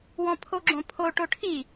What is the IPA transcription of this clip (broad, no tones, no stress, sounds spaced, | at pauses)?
w ɔ̃ pʰ o ɡ͡ǁ õ pʰ o ʈ o ʈʰ i